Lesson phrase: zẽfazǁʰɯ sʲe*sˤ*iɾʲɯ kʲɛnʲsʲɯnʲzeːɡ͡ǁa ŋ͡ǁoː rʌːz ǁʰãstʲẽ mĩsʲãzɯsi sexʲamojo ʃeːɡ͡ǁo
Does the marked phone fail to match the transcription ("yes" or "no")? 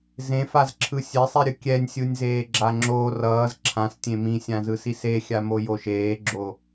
no